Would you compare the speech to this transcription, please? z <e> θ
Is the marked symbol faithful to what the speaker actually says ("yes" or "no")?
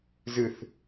no